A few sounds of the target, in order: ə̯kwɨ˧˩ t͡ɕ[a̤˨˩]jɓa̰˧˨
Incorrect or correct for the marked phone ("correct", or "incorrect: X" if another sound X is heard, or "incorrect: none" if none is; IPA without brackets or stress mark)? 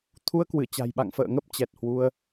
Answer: correct